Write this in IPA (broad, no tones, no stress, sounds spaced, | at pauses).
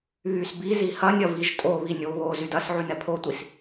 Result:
β y s b i z i h ɐ nʲ ɐ v i ʒ tʼ o β i nʲ o β o z y d ɐ s ʕ y n ɛ pʰ o tʷ i s